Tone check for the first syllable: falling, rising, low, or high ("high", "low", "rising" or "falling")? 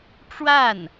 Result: falling